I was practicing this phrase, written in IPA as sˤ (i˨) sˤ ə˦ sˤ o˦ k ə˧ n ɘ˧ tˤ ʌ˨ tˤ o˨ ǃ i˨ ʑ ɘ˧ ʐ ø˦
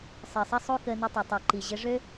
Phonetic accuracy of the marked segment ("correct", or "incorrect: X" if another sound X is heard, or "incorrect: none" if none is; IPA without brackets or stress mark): correct